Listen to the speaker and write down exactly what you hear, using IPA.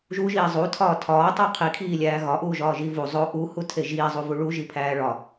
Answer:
ʒ u ʒ iː zˤ u tʰ ɒː tʰ ɒː tˤ u qʰ i kʰ iː lʲ æː ɣ ɒ ʔ uː ʒ ɒː ʒ i v u zˤ o ʔ u h u tʰ e ʒ iː zˤ u v u ɭ u ʒ i pʰ æː ɭ ɒ

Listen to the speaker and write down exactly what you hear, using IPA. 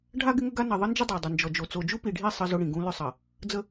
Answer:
ɖʱ a˦ ɡ ɪ˦ ŋ ə˦ ɡ a˦ n ɐ˨ ðˤ ə˦ n d͡ʒ ɪ˦ dˤ a˨ dˤ ʏ˨ n d͡ʒ ɔ˨ d͡ʒ o˨ t͡s o˨ d͡ʒ u˦ p i˨ ɖʱ i˦˨ sˤ ə˦ z ʊ˦ ɽ ĩ˨ ɡ ũ˦ l ʏ˦ sˤ ɐ˨ | d͡z ə˦

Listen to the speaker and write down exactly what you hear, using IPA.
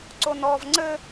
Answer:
ǀ o n ɔː v ŋ͡ǀ ɘ

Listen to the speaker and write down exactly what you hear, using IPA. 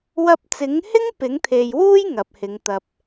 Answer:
w ɐ˧ p̚ t͡s ɪ˨˥ ŋ h ɪ˥ ŋ p ɪ˨˥ ŋ t̪ʰ e˨ j w uː˥ j ŋ ɐ˨ p̚ h ɪ˨˧ ŋ t̪ ɐ˧ p̚

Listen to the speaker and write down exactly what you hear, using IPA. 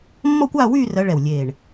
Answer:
mː ɔ˥˧ kʷ aː˥˧ w yː˥˧ r ɜ˨˦ ɭ ɛ˧˩ w lʲ eː˧˩ ɳ

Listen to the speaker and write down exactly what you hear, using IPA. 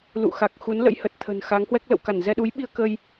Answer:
l ṵ˧˨ x a˨˩ k̚ x u˨˦ n l ə̰˧˥ j h ə˨˩ t̚ t̪ʰ ə̤˨˩ n x a˨˦ ŋ h w ɛ˦˥ k̚ l ə̰˧˨ w k a˧˩ n z ɛ˧ ɗ u˨˦ j ɓ i˧ ə̯ k ə˧ j

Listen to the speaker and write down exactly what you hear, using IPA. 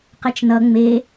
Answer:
q ɛ t͡ʃ n ʌ ŋ͡m e

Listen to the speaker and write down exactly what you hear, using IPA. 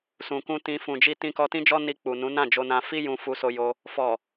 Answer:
s ũ˨ k ũ˧ t ĩ˧ f ũ˨ d͡ʒ i˧ t ĩ˧ k ɔ˧ t ĩ˦ d͡ʒ ɔ˦ n i˧ k͡p u˨ n ũ˨˦ n ã˦˨ d͡ʒ o˧ n ã˧ f i˦ j ũ˧ f u˧ s o˧ j o˧ | f ɔ˨

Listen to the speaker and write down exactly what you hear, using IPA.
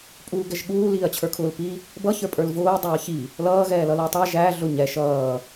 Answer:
pʼ uː ɡ ɛ ʒ ɠ uː l iː ɐ̯ t͡ɕʰ ə˞ kʰ ʊː l p i | b ʌ ç ə˞ pʼ ə˞ l v ʊː dˤ ʌː ç i | l ʌː ɣ ɛː l ʌ l ʊ ɐ̯ tˤ æ ʒ æ ɮ ʊ ɲ ɛ ʃ ʌː

